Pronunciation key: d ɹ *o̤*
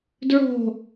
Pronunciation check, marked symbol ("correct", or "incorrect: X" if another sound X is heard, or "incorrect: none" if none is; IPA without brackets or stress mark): correct